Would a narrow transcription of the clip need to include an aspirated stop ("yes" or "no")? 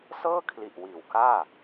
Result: yes